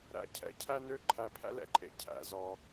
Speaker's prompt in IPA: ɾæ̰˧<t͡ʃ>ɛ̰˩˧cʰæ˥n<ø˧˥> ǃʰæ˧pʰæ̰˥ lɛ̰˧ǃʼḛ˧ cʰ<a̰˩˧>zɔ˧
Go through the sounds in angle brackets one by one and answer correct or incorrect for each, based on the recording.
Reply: incorrect: cʰ, incorrect: ø˥, incorrect: æ̰˩˧

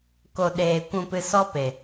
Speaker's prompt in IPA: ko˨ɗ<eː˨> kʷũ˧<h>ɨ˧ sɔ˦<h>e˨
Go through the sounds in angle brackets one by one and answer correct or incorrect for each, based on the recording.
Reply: correct, incorrect: p, incorrect: p

